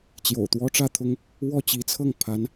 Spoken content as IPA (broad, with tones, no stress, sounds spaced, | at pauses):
t͡ɕ j o̰˨˩ ʊ̯ t̪ w ɔ˥ ʈ͡ʂ ä˥˩ t̪ʰ ʊ˥ ŋ | w ɔ˥˩ t͡ɕ i˧˥ t͡sʰ ɤ˥˩ ŋ pʰ a˧˥ n